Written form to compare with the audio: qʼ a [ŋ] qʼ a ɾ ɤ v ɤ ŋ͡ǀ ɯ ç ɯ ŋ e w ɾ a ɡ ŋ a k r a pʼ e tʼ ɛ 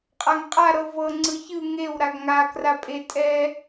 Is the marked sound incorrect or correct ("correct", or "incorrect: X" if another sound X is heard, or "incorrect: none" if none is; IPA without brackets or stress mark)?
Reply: correct